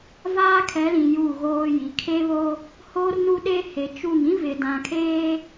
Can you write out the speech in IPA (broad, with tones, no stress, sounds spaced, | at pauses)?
v aː˦ kʰ ɛ˨˦ l ĩ˨ j u˦˨ ɣ oː˦ j i˨ kʰ e˦ β o˦ | h oː˦ r n u˦ ɗ e˦ h e˨ t͡ʃ u˦˨ ŋ ĩ˦ v ɪ˨ d ã˨ kʰ eː˦